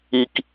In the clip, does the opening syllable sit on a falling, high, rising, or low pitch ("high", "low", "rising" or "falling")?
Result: high